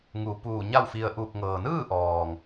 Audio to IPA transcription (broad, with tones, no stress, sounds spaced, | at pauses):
ŋ u˩˧ p uː˧˩ ɲ a˥˨ w f i˧ ə̯ ʔ uː˧˩ p̚ ŋ ɤː˩ n ɯː˥˨ ʔ ɔː˩ ŋ